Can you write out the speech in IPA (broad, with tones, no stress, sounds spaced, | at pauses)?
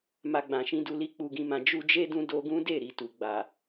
m a˨ ɡ͡b ã˨ ʃ ĩ˧ d u˧ l i˧ k͡p u˨ ɡ ĩ˨ m ã˨ d͡ʒ u˧ d͡ʒ e˦ d ũ˧ d o˧ ɡ ũ˦ d e˦˨ ɾ i˨ t u˨ ɡ͡b a˨